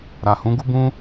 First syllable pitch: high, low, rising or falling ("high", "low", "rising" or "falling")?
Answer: low